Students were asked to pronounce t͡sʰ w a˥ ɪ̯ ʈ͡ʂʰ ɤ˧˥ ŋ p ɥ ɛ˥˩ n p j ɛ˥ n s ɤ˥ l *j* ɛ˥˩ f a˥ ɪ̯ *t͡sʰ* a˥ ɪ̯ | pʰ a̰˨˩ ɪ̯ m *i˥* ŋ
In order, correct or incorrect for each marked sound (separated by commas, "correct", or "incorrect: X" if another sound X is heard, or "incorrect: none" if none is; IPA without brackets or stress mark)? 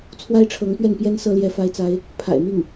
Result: correct, incorrect: t͡s, incorrect: i˥˩